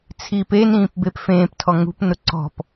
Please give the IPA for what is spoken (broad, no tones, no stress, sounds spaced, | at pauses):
t͡sʰ iː p e n ĩː p b e p f ẽː p tʰ ɔ ŋ ṳ p n ʊ ǀ ɔ̤ p